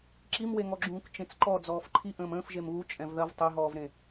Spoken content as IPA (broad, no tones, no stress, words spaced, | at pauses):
ǁimweŋɔɡ͡ǁũːk t͡ʃẽt͡sǃɔ d͡zɔːfǃʰi ʔə̃ːmə̃ːfʒem βu t͡ʃʼɛ̃vðɐv tˤeɦɔːvɾẽ